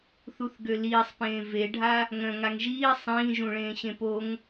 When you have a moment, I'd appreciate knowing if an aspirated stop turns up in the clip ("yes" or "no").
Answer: no